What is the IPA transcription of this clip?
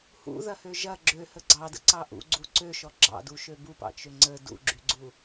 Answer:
h ṵ ð ɐ h ø ʒ ɐ ɡ͡ǁ ø h ə ɡ͡ǀ ɑ d ə̰ ǀ ɑ ʔ ṵ ɡ͡ǀ u ǀ ø ʃ ɔ ɡ͡ǁ ɑ̰ d u ʃ ø b u p ɑ̰ t͡ʃ ø ŋ͡ǀ ə d ṵ ɡ͡ǁ y ɡ͡ǀ u

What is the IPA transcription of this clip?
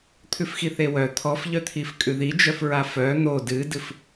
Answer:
t̪ʰ ʉ f x i θ e w œ t̪ʰ ɔ f ʎ œ t̪ʰ i f kʼ ʉ ð i d͡ʒ œ f ɹ a f œ n̪ o d ɨ d ɨ f

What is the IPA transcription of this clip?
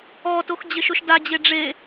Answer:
ɔ t o x d͡ʑ ɪ ʃ ʊ ʃ d a d͡ʑ e ɖ͡ʐ e

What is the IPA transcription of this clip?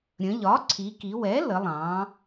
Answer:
ɾʲ ə̃˩˧ ʎ ɒ˩˥ ǀʰ i˩˧ k i˩˧ w ɛ˩˥ l ə˩˧ lˠ ɑ̃˩˧

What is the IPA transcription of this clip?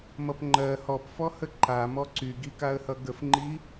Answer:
m ʌ p ŋ͡ǃ ɜ h ɔ p f ɔ h ə ǃ a m ɔ ǀ y ɡ i k a ə̯ h ʌ ɡ ə f ŋ͡ǃ i

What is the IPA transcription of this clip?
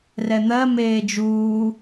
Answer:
r ɛ n̪ ɜ m eː d͡ʒ uː

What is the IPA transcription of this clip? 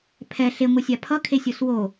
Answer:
pʰ ɛ ɬ e ŋʷ ɯ sʲ a pʰ ʌ kʰ e sʲ o s w o

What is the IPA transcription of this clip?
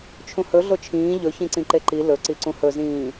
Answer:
t͡ʃʰ ũ h ɵ ɮ o t͡ʃʰ ĩː ʎ ɵ ç ĩ ǀ ĩ ǃ e ǃ i l ɵ ǀ i ǀ ũ h ɵ z ĩː

